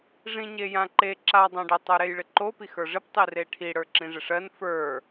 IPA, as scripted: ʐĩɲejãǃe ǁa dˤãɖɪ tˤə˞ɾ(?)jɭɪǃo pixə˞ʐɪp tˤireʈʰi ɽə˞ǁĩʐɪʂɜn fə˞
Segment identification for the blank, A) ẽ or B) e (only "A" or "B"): B